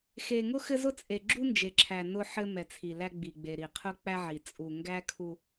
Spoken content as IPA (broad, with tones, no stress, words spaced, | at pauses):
xe˨ŋʊ˦ xɘ˦zʊ˦ t͡sʼe˨ɡ͡ǁu˦nd͡ʒe˨ǁʰæ˨ nʊ˦ħɘ˦ mɛ˨t͡sʰi˨ læ˦ɡ͡bi˨ ɡ͡be˨ɾi˨qʰʊ˦ k͡pæ˦ʕi˨ t͡sʼu˨ŋɡæ˦kʰu˦